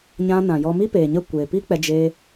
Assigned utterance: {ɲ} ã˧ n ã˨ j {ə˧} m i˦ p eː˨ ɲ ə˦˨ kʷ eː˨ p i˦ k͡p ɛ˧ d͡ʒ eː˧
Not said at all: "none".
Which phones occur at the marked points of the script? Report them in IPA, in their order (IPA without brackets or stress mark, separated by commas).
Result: ɲ, ɔ˧